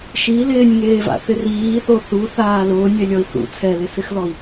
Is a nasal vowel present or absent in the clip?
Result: absent